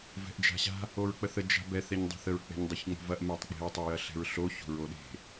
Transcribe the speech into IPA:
vɛ̤ʔd͡ʒa̤ɕa̤ | oɹk͡pəθə d͡ʒa̤bɛ θɛɲdˤə̤θəɹ k͡pɛ̤ɲdˤiçŋ͡mo̤vɐʔ metˤk͡pe̤ɹ tˤəjɐɬɛ̤ɹɬo ço̤ɹoɗe̤

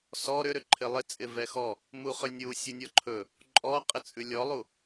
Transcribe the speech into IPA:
sɔ ɾʏɾʏ ǃʰɪlˠɪ t͡sʼɪvɛxɔ | muχʏnʲu sʲunʲɔǃʰɵ | ǃʼɔqʼɪt͡sʼʉ lʲɔlˠu

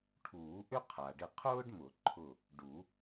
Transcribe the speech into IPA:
ʈʰuː˨˩˦ʔʏ˥ qʰa˩ɖɪ˧˩qʰʊː˥ɖmʊ˨˩˦ ǃʰʊ˧˩ | ɖu˨˩˦

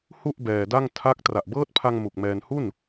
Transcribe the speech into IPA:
hu˥˩ʔbɛː˧da˥˩ŋ tʰa˦˥k̚ tra˨˩ʔbɤː˦˥t̚pʰa˧ŋ mu˨˩k̚mɛː˧nhu˥˩n

